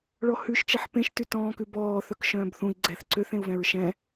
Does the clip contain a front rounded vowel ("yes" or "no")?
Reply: yes